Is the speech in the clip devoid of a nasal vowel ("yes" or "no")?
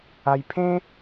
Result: no